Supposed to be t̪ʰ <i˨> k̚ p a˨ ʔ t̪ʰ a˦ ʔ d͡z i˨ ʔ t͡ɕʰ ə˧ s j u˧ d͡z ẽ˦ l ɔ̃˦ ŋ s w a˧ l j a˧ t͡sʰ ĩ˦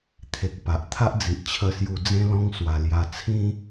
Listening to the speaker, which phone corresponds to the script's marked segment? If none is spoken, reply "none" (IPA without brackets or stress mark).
e˨